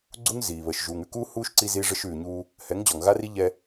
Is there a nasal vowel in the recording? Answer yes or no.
no